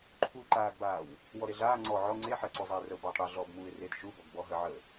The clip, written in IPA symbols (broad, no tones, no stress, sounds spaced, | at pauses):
ǃʰ uː ǃ aː ɡ b aː w | w ɔ ɾ e ɮ aː ŋ͡ǀ ɔ ʕ ɔ ŋ͡ǀ e ħ ɜ ǀ u zˤ a ɪ̯ r ə ʊ̯ b ɔː tˤ ɽ e ɮ ɔː b m uː ɪ̯ r e d ʃ u b ɔ ɡ b ɔ ɦ ə ʕ əː